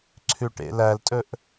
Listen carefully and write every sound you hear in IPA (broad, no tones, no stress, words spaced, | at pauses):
ǀʰʉʈḛlæltʼɵʔ